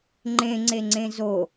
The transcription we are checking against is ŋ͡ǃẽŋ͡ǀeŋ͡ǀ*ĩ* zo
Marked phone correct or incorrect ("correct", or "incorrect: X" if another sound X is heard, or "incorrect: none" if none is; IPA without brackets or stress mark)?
incorrect: ẽ